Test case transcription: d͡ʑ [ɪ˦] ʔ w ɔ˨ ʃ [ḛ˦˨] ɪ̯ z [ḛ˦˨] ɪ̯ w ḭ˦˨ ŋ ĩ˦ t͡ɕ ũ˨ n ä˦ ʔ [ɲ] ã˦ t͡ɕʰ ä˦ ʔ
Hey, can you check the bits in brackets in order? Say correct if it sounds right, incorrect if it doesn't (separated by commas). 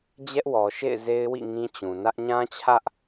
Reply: incorrect, correct, incorrect, correct